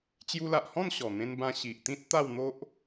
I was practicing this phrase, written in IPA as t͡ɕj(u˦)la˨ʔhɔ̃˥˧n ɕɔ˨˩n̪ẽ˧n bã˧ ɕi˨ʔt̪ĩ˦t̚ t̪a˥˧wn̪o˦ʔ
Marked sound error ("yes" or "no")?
yes